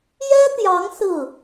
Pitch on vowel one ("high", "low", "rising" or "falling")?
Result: high